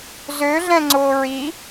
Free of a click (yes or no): no